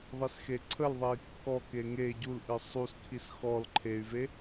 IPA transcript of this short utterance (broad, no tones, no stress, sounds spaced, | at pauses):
ðˤ i s x e ǀʰ ə l ðˤ e i̯ kː ɔ k e ŋ e ɟ u l ʔ ɨ sˤ u s kʰ i s x ɔ l ǃʰ e y̯ v e